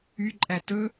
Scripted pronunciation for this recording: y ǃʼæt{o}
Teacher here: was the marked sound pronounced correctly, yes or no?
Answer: no